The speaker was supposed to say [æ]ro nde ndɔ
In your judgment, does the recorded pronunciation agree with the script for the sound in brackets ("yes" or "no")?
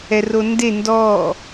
no